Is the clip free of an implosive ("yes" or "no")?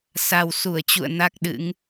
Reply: no